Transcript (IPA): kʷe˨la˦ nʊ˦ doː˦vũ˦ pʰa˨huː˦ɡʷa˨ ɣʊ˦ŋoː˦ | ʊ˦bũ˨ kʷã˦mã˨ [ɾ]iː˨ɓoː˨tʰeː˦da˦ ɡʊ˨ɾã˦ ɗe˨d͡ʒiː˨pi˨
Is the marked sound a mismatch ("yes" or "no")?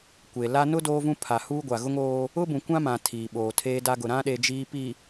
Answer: yes